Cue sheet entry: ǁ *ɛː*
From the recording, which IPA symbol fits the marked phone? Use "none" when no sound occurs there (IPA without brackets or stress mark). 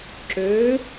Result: øː